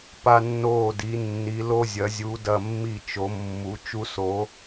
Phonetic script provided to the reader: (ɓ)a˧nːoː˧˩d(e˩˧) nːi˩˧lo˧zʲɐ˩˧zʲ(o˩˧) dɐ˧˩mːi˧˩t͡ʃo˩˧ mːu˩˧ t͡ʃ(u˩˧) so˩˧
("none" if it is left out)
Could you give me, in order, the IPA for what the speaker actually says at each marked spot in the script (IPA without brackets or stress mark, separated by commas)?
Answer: p, i˩˧, u˩˧, u˧